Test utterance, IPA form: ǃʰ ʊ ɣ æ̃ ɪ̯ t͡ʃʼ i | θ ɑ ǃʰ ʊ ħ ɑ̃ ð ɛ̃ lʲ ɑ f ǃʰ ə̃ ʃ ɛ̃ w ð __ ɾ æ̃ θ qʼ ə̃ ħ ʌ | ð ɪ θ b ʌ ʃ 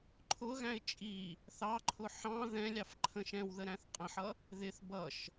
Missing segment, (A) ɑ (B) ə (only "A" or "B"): B